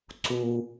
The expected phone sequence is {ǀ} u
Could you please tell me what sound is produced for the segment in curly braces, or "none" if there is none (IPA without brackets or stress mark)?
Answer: ǀ